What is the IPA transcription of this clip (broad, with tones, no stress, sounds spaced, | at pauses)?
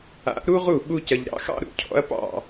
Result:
a̰˩˥ ʔ ɾ u˥ ʁ u˥˩ ɓ u˧ c ɐ˩ ʎ ɾ ɑ̰˩˥ x ɑ̰˥ ɾ ṵ˥˩ cʰ ɔ̰˩˥ ɐ̯ p ɑ̰˥˩